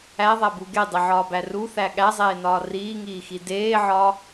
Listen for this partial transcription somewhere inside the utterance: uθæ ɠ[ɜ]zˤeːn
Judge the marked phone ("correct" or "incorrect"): incorrect